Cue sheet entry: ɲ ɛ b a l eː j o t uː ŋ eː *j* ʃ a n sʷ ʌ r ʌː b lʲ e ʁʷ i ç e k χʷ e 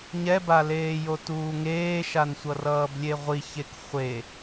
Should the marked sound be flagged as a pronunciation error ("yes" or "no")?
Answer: yes